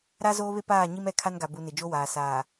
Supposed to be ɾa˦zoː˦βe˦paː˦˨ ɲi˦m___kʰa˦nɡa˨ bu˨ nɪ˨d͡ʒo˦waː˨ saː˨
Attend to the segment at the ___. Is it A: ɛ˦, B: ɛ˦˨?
B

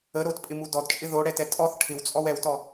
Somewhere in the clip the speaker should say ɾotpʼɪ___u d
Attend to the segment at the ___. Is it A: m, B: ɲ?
A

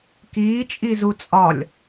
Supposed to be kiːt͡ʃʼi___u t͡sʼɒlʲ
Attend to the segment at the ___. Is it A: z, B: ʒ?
A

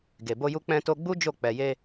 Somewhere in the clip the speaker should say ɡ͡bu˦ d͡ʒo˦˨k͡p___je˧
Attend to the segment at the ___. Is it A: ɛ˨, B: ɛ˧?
A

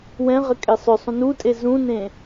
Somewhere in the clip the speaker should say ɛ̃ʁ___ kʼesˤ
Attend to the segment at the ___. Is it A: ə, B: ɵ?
A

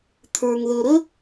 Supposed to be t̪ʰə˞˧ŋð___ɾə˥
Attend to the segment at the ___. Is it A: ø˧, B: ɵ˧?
B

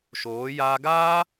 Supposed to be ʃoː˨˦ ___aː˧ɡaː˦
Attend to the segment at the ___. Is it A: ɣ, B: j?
B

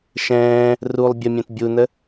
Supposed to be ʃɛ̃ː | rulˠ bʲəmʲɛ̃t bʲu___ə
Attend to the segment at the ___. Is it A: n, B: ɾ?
A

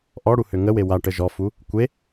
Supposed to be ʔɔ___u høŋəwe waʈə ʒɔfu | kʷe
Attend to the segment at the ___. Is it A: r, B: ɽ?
B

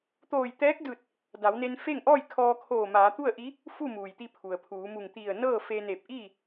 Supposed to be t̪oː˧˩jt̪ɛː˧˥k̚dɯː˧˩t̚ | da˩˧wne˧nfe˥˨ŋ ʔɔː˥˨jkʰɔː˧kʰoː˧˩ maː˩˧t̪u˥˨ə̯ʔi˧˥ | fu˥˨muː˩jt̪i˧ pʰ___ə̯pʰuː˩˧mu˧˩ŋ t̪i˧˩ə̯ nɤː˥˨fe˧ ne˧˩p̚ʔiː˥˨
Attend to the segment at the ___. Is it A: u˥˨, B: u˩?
B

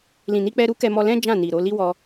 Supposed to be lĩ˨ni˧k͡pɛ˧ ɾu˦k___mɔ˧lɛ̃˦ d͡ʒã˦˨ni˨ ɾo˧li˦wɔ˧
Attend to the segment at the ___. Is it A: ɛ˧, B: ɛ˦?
A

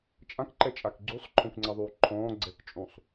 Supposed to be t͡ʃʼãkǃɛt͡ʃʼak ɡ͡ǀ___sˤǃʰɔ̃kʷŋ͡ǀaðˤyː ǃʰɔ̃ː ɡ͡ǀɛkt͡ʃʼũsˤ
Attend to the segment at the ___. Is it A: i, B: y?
B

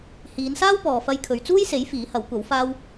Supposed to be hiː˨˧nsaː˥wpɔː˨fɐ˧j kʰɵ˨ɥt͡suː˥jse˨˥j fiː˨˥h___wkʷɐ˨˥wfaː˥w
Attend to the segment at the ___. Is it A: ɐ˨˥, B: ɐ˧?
A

